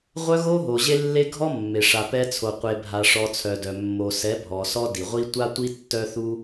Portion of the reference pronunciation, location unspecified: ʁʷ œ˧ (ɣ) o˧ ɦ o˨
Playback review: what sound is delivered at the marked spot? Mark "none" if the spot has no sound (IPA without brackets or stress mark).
ɣ